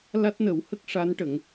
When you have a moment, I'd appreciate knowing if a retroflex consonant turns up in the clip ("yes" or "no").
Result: yes